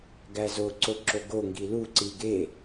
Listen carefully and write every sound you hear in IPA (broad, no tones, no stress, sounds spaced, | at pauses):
ɡ æ z o ǀ o ǁ o ɡ o ŋ ɡ i l u ǀ i ɡ e